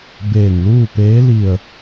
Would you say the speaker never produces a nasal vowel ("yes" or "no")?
yes